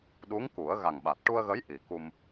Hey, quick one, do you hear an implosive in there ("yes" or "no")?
yes